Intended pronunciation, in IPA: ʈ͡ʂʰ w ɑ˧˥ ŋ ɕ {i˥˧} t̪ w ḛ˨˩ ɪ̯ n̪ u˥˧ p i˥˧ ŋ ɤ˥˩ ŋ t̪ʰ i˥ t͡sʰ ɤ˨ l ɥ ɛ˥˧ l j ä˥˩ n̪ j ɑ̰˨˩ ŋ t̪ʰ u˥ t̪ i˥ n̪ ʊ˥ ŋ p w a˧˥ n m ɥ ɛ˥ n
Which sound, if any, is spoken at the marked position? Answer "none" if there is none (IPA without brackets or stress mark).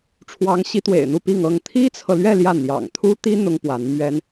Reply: i˧˥